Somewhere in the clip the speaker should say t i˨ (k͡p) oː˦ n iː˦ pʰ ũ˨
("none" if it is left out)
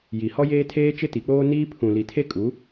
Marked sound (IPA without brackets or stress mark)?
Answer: k͡p